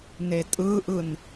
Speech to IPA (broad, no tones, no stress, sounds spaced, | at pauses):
n e tʼ ɯ ʔ ɯ n